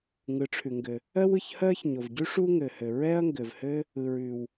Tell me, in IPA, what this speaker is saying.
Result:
ŋɯ˩ʈ͡ʂʰʉ˩ŋɡɘ˩ | ɜ˥wɯ˩çhɜ˥ç ɲo˩vɟʉ˥ ʂu˥ŋɘ˩hɘ˩ ɹɛ˥ɐ̯ŋɡɘ˩vhɘ˥ | ɯ˩ɹʉ˩w

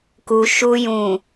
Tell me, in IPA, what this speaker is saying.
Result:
ku˨ ʃu˨jũ˨

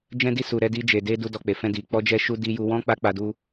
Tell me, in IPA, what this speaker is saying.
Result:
d͡ʒɛ̃˦di˦ su˧ ɾɛ˧di˧d͡ʒe˨de˧ du˦dɔ˧k͡pe˨ fɛ̃˧di˨ k͡pɔ˧d͡ʒɛ˧ʃu˧ di˧ju˧ wɔ̃˦ k͡pa˦k͡pa˧du˦

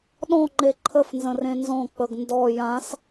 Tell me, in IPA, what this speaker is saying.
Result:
ɗɔ̃ŋ͡ǃe ǃʰəf nzə̃rẽnzɔ̃ k͡pəɡndɔ jãs

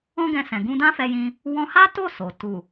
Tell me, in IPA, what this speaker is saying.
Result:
ɔ̃˦ɡɛ̃˧sɛ̃˨ ɡũ˧dã˦fɛ˧jĩ˧ | wɔ̃˧ha˦ to˦˨ so˨ tu˨

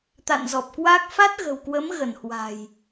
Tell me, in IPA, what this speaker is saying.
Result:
t̪a̰˧˨n zɔ˨˩p̚kwa˦˥k̚ fa˦˥t̚ɣə̤˨˩wkwə˨˦m ɣə˧˩nhwa̤˨˩j

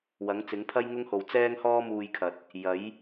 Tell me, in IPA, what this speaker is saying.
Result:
wɐ˨˥ŋt͡sɪ˨˥ŋpʰɐ˥j ŋʊ˥ŋho˨w t͡sɛː˥ŋhɔː˥muː˧jkʰɐ˨t̚ | jɐ˨˥j

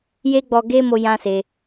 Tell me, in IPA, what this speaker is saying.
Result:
je˦ɡ͡bɔ˧ɡe˦mo˧ jã˦se˧

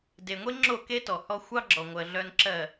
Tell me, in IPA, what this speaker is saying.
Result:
de˨ŋʷe˦ ŋ͡ǁo˦˨ke˦tɔ˨hɔ˦ xʷɑ˦ɡ͡ǁɔ˨ŋʷɜ˨ ɮœ˦nǁɜ˦˨

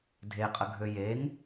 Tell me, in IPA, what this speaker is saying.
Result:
dʱeqʼəɡʱø jeŋ

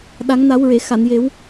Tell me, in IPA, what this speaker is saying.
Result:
ɗa˨˩˦ŋna˨˩˦wɹe˨˩˨ xa˨˩˨nje˨˩˦w

